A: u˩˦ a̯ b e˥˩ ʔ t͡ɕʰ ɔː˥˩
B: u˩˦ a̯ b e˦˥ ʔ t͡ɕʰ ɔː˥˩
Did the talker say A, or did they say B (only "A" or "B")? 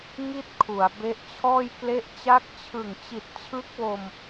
B